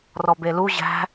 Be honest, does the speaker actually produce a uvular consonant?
no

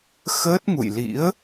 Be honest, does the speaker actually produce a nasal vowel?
no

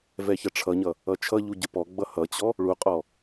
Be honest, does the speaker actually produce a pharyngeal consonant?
no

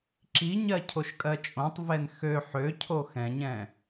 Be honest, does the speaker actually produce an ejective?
yes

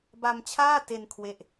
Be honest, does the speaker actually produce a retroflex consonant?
no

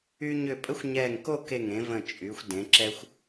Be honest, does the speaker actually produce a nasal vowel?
yes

